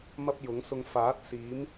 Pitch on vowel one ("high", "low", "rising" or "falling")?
high